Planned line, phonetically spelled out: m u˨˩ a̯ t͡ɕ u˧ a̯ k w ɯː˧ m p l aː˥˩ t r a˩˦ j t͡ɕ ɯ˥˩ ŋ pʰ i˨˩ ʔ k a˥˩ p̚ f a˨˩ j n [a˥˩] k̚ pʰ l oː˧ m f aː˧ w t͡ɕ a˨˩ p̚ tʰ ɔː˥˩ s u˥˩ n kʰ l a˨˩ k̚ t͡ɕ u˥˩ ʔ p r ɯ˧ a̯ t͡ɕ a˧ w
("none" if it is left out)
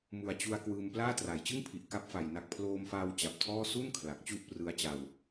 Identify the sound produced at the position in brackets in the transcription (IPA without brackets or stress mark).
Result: a˨˩